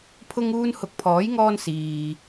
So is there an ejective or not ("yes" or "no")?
no